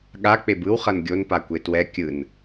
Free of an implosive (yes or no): no